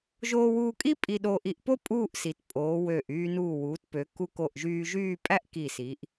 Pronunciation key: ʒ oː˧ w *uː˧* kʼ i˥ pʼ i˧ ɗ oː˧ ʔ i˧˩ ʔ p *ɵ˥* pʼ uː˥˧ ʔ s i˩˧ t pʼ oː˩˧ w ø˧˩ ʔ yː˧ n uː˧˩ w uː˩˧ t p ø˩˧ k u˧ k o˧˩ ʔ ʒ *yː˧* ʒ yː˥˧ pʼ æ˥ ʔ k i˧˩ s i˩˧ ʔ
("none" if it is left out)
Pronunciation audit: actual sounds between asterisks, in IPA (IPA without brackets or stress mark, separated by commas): uː˧, o˥, yː˧